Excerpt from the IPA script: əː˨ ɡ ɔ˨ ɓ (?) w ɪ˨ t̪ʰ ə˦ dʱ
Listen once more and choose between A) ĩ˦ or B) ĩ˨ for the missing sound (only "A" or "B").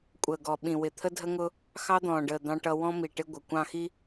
B